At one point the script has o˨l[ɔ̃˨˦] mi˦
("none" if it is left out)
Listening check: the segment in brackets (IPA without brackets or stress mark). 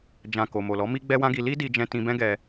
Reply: ɔ˨˦